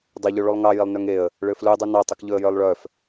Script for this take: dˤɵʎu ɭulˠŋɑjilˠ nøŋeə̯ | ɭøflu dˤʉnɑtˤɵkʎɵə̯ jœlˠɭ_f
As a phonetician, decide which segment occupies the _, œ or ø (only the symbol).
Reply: œ